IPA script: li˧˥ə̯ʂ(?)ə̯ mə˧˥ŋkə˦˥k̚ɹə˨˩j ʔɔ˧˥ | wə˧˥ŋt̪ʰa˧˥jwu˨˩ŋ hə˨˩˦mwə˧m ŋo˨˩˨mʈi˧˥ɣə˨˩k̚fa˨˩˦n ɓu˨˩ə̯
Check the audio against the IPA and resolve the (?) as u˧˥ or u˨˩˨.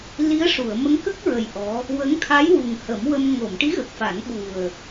u˨˩˨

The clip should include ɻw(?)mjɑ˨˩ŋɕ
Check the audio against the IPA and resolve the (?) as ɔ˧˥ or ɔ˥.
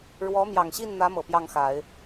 ɔ˧˥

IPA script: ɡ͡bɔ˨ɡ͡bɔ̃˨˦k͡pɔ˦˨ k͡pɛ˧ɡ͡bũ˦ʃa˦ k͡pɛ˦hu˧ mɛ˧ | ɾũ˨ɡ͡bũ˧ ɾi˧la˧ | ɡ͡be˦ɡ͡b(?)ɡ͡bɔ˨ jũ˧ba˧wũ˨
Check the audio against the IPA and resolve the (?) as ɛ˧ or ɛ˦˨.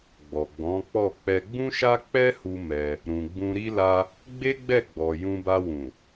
ɛ˦˨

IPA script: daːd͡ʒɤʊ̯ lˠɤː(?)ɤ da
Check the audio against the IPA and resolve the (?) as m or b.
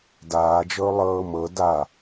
m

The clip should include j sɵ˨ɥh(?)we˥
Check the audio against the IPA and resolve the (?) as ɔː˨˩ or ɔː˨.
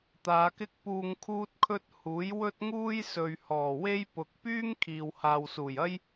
ɔː˨˩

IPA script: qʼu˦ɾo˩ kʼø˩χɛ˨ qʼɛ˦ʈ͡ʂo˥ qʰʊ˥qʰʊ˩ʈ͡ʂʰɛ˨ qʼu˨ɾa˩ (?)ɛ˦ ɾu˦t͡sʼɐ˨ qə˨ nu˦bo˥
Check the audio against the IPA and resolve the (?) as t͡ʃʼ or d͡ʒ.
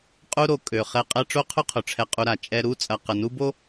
t͡ʃʼ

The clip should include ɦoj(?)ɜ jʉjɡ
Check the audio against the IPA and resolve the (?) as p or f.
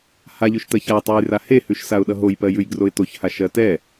p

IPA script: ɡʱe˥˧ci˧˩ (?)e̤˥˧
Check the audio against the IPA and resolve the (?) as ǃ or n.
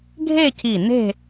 n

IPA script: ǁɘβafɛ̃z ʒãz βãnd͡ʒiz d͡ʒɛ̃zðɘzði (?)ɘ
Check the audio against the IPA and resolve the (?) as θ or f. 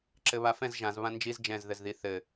θ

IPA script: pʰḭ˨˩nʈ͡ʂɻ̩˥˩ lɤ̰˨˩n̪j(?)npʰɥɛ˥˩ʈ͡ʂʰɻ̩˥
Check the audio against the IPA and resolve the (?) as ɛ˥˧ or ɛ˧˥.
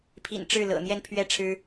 ɛ˥˧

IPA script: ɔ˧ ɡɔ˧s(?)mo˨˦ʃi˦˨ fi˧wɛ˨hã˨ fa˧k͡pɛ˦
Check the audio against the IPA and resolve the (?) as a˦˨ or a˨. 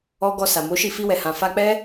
a˨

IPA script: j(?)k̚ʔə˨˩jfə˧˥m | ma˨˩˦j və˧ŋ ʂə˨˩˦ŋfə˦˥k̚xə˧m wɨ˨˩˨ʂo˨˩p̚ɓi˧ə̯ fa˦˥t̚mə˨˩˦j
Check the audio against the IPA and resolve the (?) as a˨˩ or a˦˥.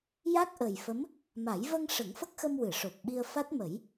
a˦˥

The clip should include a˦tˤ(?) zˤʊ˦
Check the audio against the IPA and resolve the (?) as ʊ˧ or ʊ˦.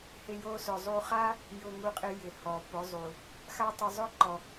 ʊ˧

